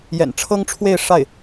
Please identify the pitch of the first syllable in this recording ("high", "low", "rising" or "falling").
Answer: low